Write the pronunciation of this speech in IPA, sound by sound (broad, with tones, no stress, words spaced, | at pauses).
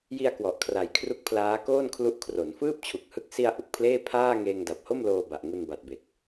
ji˧a̯ kwɔ˨˩ʔkʰra˨˩j kʰru˦˥k̚pʰlaː˦˥koː˥˩nkʰlu˦˥ʔ kʰro˩˦n fɯː˥˩p̚t͡ɕʰu˨˩k̚hɯ˦˥k̚ si˧a̯ ʔu˨˩k̚pʰleː˥˩ pʰaː˥˩ ŋeː˧ŋda˨˩p̚ho˥˩m loː˧ba˨˩ʔ ŋu˧nba˨˩t̚be˨˩k̚